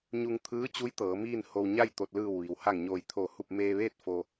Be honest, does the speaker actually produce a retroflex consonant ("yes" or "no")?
no